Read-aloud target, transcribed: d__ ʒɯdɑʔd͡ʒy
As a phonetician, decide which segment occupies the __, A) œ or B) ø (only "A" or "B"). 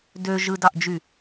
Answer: B